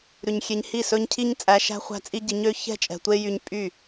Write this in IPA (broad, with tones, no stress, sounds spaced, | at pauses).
ɾ ʉ˨ ɲ xʲ e˧ ɲ h i˦˨ s ɵ˦ ɲ cʰ i˦ ɲ t͡sʼ æ˧ ʃ æ̤˦ χʷ æ̤˦ t͡sʼ i˦ ɟ i˧ ɲ ø˦ ç ɛ̤˦ t͡ʃʼ ɛ̤˨ tʷ e˦ j y˧ ɲ pʼ y˦˨